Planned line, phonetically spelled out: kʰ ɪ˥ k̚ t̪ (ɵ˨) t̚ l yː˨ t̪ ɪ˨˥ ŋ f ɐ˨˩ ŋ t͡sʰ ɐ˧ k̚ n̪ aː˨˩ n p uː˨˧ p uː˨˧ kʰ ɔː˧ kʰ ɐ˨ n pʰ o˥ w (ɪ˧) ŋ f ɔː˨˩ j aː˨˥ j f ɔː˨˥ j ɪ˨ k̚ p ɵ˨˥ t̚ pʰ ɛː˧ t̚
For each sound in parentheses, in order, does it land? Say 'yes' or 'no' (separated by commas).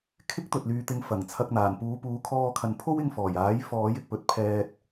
yes, yes